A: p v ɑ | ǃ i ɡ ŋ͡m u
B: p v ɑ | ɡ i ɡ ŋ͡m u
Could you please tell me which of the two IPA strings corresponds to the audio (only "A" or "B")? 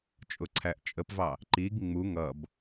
A